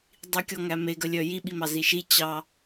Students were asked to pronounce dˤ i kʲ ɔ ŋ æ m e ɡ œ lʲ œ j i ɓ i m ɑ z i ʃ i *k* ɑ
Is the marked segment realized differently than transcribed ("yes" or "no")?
yes